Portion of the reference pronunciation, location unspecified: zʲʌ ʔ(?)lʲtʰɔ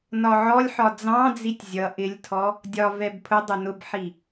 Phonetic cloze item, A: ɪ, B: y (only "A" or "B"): A